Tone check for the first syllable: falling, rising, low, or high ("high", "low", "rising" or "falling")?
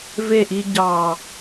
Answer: falling